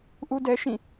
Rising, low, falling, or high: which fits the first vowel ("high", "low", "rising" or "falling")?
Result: high